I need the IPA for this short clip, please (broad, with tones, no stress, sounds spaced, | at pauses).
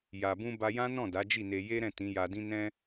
j a˨ b ũ˧ b a˧ j ã˦ n ɔ̃˦˨ d a˨˦ d͡ʒ i˦˨ n e˧ j e˦ ɾ ɛ̃˦˨ t ĩ˨˦ j a˧ d ĩ˦ n ɛ̃˦